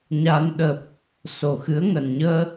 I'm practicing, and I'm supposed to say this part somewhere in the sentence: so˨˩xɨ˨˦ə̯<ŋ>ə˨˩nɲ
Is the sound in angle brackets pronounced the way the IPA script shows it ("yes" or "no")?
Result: yes